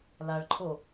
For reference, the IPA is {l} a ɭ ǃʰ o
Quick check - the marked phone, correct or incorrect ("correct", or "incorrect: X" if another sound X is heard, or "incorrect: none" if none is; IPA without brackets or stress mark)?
correct